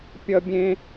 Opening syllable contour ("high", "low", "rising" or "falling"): high